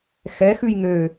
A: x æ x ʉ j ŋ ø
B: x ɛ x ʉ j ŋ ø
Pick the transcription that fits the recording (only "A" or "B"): B